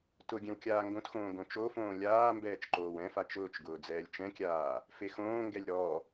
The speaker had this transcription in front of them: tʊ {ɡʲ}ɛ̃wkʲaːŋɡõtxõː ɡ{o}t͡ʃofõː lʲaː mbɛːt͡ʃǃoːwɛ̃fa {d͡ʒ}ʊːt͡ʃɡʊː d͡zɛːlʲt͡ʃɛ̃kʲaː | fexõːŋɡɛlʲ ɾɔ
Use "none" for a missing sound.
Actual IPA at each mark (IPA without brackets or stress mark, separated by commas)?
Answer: ɡʲ, õ, t͡ʃ